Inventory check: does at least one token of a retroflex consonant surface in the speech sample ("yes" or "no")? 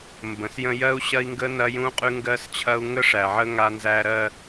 yes